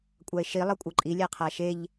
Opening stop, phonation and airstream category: ejective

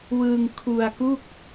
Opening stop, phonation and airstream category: aspirated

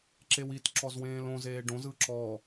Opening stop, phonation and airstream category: click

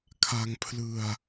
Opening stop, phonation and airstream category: aspirated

